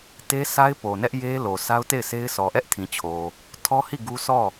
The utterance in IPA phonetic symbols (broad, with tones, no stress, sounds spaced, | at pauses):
t e˦ sʰ a˦ ɪ̯ p o˨ n ɛ˦ ʔ j e˦ l o˨ s a˦ ʊ̯ t e˦˨ ɪ̯ sʰ e˦ ɪ̯ s ɔ˨ ʔ ɛ˦ ʔ tʰ ĩ˨ t͡ɕʰ o˨ | tʰ ɔ˦ h i˦˨ ɡ u˦ sʰ ɔ˦˨